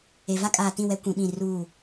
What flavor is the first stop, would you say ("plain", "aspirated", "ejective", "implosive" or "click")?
ejective